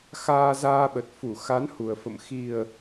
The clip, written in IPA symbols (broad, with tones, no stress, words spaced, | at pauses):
xaː˧zaː˧ɓə˨˩t̚fu˧˩ xa˨˦n hu˨˩ə̯fə̰˧˨m xi˨˩ə̯